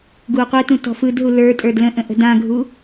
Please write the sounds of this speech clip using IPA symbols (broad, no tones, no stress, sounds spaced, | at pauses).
ɡ u o̯ qʷ ɘ t ũ t ɔ̤ f ɯ d ɦ u l ə˞ tʼ ə˞ d l ə̃ ʔ ə̃ ʔ ə̤ d ã ɡʱ u